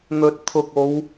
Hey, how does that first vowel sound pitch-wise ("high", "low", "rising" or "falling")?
low